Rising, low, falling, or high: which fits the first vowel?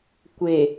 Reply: low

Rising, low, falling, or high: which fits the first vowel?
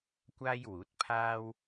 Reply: high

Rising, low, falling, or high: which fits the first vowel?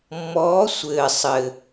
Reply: rising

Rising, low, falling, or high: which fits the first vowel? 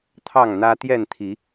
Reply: falling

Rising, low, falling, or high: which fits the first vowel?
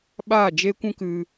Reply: falling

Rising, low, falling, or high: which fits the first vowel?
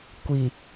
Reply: low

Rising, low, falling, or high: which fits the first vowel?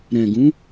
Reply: low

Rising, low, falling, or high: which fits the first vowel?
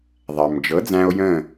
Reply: low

